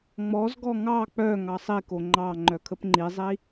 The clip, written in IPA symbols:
ŋ͡mɔzɡɔ ŋɑ k͡pœ ŋɑsˤiko ŋ͡ǃɑ ŋ͡ǃœkʰəpŋ͡ǃizˤi

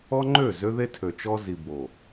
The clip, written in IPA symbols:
ɔ˦ŋ͡ǃø˦˨ zø˦ðe˦tʰø˨t͡ʃɔ˦ zi˨bo˨

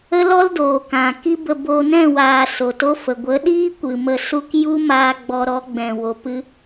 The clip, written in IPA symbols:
ə˦lɔ˦l doː˨kã˨ ki˦bə˧ bo˧nɛ̃˦˨waː˨ so˨to˦ fə˨ ɡʷə˨˦ɗiː˦ kʷɨ˨ mə˧su˦k ju˦maː˧ ɡ͡bɔ˧ɾɔ˨˦ɡ͡bɛ̃˨ wo˨pɨ˧

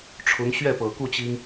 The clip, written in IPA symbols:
ʈ͡ʂʰʊ˧˥ŋ ɕɥɛ˥˩pɤ˨˩ku˥˩ t͡ɕi˥ŋ

